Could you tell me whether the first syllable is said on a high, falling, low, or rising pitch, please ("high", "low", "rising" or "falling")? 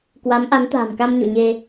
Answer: rising